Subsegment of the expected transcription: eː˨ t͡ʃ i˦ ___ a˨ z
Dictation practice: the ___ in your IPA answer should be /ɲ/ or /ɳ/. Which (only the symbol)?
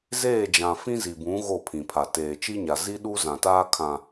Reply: ɲ